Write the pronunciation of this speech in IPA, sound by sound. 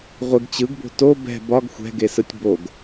ʁʷɪɡ t͡ɕɯɡbo̤ to bɛ̤ bɒɡ xʷɛ̤ɡesɯtʲ boɡ

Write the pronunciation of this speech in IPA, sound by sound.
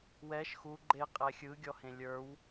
wɛʃ xu ɡ͡ǃe qʼɛxʲɯ ɡʲɔhẽlʲə˞w

